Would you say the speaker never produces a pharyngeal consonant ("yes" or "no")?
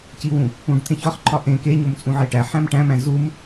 no